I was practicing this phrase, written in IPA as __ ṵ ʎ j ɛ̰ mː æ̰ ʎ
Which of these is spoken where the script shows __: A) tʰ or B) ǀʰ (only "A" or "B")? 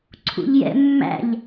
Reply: B